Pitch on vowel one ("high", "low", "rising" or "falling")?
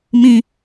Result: high